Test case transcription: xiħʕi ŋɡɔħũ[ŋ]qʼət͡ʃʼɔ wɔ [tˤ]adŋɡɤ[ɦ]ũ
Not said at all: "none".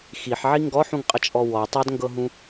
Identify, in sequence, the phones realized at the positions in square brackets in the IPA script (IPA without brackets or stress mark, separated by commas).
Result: ŋ, tˤ, ɦ